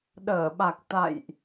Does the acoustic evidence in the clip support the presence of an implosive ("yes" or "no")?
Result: yes